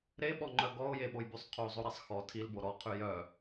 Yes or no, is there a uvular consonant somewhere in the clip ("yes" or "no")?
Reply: yes